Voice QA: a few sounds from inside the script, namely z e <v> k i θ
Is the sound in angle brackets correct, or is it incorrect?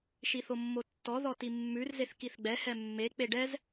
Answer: incorrect